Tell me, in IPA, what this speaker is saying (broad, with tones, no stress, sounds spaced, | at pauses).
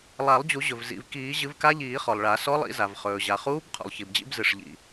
lˠ a˨˩˦ lˠ d͡ʑ u˨˩˦ ʑ ɵ˩ v z ḭ˩ v k iː˨˩˦ ʑ ɨ˨˩˦ v k a˧˥ ʎ iː˨˩˦ χ ɔ˩ lˠ ɭ a˨˩˦ s ɔ˧˥ lˠ ḭ˨˩˦ z a˩ v χ ɵː˩ ʑ a˩ χ uː˧˥ b qʰ ṵ˩ lˠ ç i˩ b d͡ʑ ḭ˧˥ b z ɨ˩ ʂ ʎ ḭ˩